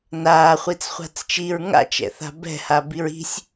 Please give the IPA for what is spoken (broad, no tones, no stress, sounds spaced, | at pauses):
n aː χʷ i t͡s χʷ a̤ t͡s t͡ʃ i ɹ ŋ a̰ t͡ʃ ɛ̰ θ a̤ b ɛ̤ h a b i ɹ i̤ sʲ